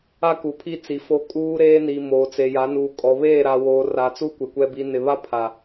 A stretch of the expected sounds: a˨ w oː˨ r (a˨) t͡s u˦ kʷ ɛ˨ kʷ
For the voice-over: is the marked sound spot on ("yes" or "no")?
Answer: yes